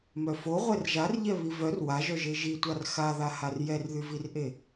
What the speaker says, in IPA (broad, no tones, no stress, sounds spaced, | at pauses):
m œ f o ʁʷ ɛ r ʒ a r ʎ ɛ β i v œ r w a ʒ œ ʒ e ʒ i tʷ a r x a ð a h a r j ɛ r ð y v i r ʔ e